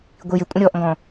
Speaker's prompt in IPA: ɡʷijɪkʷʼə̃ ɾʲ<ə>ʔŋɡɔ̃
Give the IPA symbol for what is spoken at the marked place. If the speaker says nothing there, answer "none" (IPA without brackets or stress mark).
ɔ